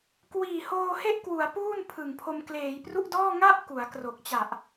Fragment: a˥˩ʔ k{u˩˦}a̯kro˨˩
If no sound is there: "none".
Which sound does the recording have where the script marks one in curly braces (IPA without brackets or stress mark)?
u˩˦